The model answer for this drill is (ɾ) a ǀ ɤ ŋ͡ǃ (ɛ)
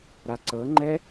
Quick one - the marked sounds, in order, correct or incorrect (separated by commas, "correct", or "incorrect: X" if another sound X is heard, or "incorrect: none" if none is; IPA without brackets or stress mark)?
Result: correct, correct